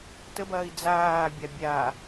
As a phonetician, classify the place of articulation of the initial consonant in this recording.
alveolar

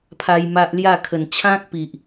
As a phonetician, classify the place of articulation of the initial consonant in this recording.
labial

